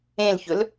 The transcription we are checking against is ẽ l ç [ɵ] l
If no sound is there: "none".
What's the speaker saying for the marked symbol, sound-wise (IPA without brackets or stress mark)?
ɵ